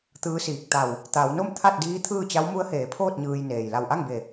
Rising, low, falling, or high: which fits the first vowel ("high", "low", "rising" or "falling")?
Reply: rising